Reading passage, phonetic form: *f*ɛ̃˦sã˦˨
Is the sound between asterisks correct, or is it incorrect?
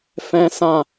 correct